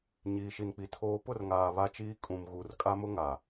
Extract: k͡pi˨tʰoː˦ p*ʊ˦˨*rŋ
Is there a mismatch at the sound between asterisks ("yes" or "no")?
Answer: no